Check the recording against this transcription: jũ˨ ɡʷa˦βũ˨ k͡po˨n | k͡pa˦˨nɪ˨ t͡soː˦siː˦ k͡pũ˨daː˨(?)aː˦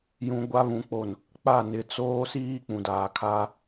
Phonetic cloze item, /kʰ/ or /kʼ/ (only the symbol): kʰ